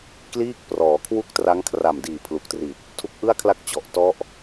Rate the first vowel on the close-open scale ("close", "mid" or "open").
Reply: close